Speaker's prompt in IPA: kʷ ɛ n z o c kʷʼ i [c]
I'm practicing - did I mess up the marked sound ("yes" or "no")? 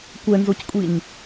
yes